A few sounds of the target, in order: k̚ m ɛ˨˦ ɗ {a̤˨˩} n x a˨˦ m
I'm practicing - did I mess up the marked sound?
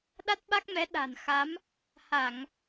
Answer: no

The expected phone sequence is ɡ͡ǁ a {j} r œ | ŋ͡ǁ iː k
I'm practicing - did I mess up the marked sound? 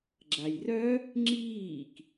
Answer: no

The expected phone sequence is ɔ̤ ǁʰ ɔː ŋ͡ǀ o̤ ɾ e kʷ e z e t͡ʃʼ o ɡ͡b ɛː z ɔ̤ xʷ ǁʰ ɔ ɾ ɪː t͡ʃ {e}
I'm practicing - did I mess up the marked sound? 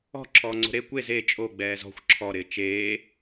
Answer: yes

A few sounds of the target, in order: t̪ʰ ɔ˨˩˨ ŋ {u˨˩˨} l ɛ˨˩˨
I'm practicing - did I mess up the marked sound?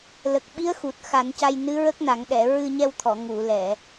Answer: no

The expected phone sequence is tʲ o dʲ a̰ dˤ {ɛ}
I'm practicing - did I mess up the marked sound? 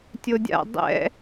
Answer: yes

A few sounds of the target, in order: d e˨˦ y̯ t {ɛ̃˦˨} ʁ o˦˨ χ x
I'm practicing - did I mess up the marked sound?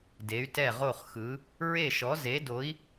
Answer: yes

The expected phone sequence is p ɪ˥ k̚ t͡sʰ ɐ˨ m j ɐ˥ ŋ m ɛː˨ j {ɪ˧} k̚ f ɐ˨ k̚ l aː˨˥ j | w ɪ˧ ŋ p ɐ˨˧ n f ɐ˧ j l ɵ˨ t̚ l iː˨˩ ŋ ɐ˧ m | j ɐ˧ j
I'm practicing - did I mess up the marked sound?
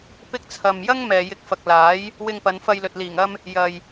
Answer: yes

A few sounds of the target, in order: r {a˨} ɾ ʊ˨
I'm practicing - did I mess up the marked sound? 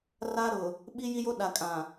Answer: yes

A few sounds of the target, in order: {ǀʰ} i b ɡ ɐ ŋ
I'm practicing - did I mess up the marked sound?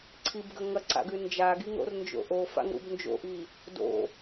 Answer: no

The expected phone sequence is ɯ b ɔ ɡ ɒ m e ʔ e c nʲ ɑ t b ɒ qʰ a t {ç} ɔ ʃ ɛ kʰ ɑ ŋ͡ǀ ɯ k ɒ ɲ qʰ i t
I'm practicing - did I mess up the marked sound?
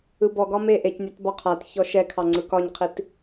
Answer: no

